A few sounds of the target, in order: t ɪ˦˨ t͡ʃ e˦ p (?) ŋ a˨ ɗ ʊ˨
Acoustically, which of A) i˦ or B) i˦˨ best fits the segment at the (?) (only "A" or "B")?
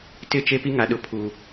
A